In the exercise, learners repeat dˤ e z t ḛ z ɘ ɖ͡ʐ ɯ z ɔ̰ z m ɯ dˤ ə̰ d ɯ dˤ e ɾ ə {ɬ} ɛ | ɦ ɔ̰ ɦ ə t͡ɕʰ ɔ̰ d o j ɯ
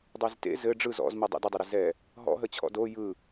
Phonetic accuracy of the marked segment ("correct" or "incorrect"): incorrect